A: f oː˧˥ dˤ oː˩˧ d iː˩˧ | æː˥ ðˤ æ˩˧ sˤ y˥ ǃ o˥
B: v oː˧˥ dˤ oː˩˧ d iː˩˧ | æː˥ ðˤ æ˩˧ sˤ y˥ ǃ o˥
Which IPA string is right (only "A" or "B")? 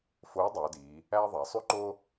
A